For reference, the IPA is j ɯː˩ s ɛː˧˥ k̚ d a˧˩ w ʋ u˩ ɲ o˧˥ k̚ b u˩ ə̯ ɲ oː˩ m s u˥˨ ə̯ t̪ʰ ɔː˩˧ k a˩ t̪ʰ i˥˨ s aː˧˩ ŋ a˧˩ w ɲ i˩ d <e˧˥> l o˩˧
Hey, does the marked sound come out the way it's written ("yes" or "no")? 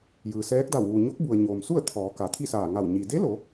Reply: yes